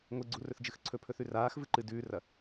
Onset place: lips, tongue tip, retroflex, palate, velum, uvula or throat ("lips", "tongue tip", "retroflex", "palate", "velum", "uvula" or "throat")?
velum